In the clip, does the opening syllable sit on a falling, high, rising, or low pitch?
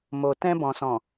low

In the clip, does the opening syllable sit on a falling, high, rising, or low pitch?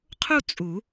falling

